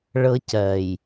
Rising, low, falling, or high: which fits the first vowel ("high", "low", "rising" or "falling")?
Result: high